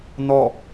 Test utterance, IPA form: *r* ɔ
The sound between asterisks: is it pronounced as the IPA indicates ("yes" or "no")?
no